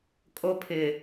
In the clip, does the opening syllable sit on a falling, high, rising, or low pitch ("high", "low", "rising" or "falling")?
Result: high